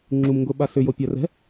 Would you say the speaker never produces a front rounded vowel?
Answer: no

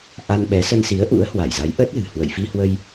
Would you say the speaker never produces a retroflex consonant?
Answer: yes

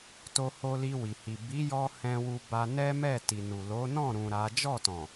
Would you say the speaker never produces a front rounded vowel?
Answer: yes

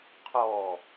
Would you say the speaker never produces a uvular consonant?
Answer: no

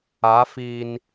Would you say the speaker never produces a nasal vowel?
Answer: yes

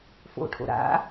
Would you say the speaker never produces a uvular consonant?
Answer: yes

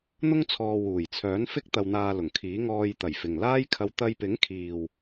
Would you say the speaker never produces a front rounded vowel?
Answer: no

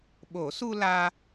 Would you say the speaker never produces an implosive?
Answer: no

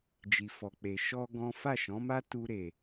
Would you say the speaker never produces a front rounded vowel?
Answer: yes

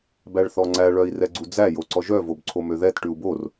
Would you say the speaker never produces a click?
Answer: no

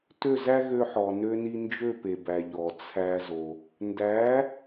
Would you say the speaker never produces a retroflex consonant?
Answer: yes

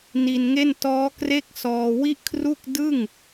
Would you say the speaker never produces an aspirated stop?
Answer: no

